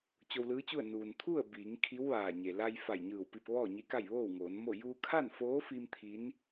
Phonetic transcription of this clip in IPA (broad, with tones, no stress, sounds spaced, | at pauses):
t͡ɕ o˧ w l ɯː˧˥ t͡ɕ u˥˨ ə̯ n uː˩ n t̪ʰ u˥˨ ə̯ b iː˩˧ ŋ kʰ i˧˥ w ʋ aː˧˩ ɲ e˩ l a˧ j f a˧˩ j ɲ ɯː˧˩ w p i˧ p̚ ʋ ɔː˥˨ ɲ i˧˥ k a˥˨ j ʋ oː˥˨ w ŋ oː˩˧ n m o˥˨ j uː˧ kʰ a˥˨ n f oː˧˥ f i˧ m t̪ʰ i˧˥ n